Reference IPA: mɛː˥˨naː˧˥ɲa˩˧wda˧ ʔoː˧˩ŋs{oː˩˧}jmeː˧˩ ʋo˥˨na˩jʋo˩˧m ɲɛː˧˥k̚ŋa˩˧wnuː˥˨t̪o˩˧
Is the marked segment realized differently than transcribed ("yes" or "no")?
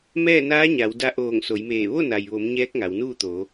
yes